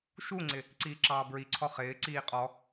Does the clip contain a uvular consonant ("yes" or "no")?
yes